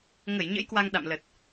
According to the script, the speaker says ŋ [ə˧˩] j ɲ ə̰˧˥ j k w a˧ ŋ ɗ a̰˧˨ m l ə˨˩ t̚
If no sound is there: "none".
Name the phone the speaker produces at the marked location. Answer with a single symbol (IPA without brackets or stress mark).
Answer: ə˧˩